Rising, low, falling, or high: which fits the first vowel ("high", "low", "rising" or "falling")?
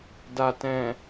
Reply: low